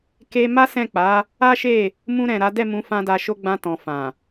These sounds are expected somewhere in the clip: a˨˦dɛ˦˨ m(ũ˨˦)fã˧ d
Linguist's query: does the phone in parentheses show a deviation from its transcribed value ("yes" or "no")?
no